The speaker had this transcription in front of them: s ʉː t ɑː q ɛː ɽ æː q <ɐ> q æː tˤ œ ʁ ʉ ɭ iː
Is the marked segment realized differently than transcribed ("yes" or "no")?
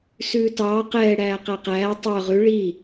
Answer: yes